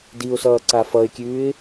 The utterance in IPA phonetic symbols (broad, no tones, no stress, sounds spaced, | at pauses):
d i ʊ̯ s ʌː ǀ a f ʌ ɪ̯ kʲ ʉː ɪ̯